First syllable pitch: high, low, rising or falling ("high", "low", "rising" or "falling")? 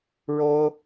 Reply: high